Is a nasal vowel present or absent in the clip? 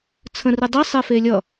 present